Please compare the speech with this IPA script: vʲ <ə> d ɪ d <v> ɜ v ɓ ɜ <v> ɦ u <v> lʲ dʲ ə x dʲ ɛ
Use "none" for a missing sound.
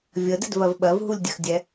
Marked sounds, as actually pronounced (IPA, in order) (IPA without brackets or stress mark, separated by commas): ə, v, v, none